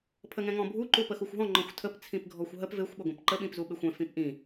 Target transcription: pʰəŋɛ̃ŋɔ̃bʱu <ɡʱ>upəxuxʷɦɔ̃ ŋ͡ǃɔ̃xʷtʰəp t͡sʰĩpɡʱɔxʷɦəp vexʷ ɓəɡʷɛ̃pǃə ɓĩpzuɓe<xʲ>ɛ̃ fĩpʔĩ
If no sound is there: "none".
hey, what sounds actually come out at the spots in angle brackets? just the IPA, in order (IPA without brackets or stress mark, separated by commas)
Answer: ǃ, xʷ